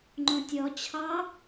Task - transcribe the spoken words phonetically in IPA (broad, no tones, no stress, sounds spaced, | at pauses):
ŋ͡ǃ õ tʲ ɔ t͡ɕʰ ɑ